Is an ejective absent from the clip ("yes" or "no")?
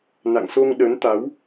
yes